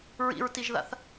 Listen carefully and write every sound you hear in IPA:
ɹ ḭ ɹ t i ʒ ð a̰ θ

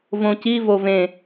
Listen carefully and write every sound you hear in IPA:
v õ c i v o v ẽ

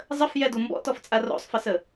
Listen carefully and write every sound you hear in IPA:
zˤ ə f j ɛ d u m b ɔ̰ t ɔ f t͡sʼ a r o̰ sˤ f ə s ə

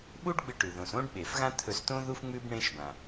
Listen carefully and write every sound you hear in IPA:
ɓ u˥ ɖ ɡ͡b ɨ˧ ʈ ʉ˩ ð õ˩ s õ˥ ɖ ɓ e˩ f ɣ ã˥ t̪ʰ ɵ˧ s t õ˥ ð u˥ f ŋ͡m ʉ˥ b ɳ ẽ˧ ʃ b ã˩

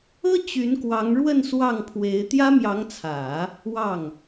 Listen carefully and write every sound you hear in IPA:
ɤ˥ t͡ɕ y˧˥ n k w ɑ˧˥ ŋ ɻ w ə˥˧ n s w ɑ˥˩ ŋ pʰ w e˧˥ ɪ̯ t̪ j ä˥ m j ɑ˧˥ ŋ t͡sʰ ä˨˩˦ | w ɑ˥˩ ŋ

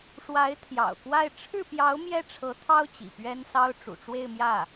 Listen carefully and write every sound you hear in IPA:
ʂ w a˧˥ ɪ̯ t̪ʰ j ɑ̰˨˩ ʊ̯ k w a˥˧ ɪ̯ ʈ͡ʂʰ ɻ̩˥˩ p j ɑ˧˥ ʊ̯ m j ɛ˥ ʈ͡ʂʰ ɤ˧˥ t̪ʰ ɑ˥ ʊ̯ t͡ɕ ḭ˨˩ p ɥ ɛ˥ n s ɑ˥ ʊ̯ ʈ͡ʂ ṵ˨˩ ʈ͡ʂ w e˥˧ ɪ̯ m j ä˥˩

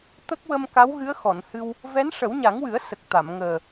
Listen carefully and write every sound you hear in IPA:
t̪ ə˦˥ k̚ w ə˧ m k a˧˥ w ɣ ɨ˧˥ ə̯ x ɔ˨˩˨ n h ɨ˧ w | v ɛ˧˥ n ʂ ə˨˩˦ w ɲ a˨˩˦ ŋ w ɨ˨˩˦ ə̯ s ə˨˩ k̚ t̪ a˨˩˨ m ŋ əː˨˩

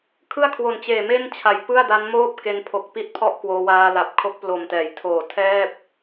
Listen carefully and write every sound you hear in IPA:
kʰ ɯ˥˩ a̯ kʰ w o˨˩ n t͡ɕ eː˨˩ m e˥˩ n t͡ɕʰ a˨˩ j p ɯ˥˩ a̯ d a˦˥ n m oː˥˩ p̚ k e˧ n pʰ o˨˩ k̚ p i˥˩ t̚ pʰ ɔ˥˩ ʔ k w oː˧ w aː˧ l a˨˩ p̚ kʰ o˦˥ k̚ p l o˨˩ m t ɛː˩˦ j tʰ oː˨˩ tʰ ɛː˥˩ p̚

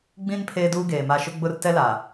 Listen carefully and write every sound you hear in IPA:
ɡ͡b ĩ˦ n pʰ eː˦ d uː˦ ɡ eː˨ m a˦ ʃ ʊ˦ ɡ͡b ʊ˦ r t ɛ˦ l aː˨

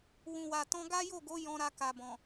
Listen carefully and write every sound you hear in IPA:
w ũ˨ w a˨ t ɔ̃˧ ɡ a˦ j o˦˨ ɡ o˨˦ j ɔ̃˧ ɾ a˧ k a˨ b ɔ̃˨

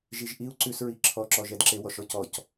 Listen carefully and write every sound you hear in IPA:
ʒ i ʒ ʔ i u̯ ǀ ʉ s ɹ i ǁʰ ɔ ǁ ɔ ʒ ɛ d ǁ e w ɔ ʃ ɔ c ɔ c

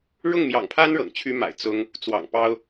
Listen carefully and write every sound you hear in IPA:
ɻ ʊ˥˩ ŋ m j ɑ̰˨˩ ŋ pʰ a˥ n ɻ ɤ̰˨˩ ŋ t͡ɕʰ y˥ m a̰˨˩ ɪ̯ t͡s ʊ˥ ŋ | t͡s w ɑ̰˨˩ ŋ p ɑ˥ ʊ̯

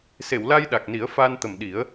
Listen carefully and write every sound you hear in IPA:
s e˨˩˨ w l a˧ j ɗ a˨˩ k̚ n i˨˩˦ ə̯ f aː˧ n t̪ ə˨˩ m ɗ i˨˩˦ ə̯

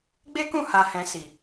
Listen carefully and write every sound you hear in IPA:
ɡ͡b e˦ k ũ˦˨ h a˧ h ɛ̃˧ s i˨

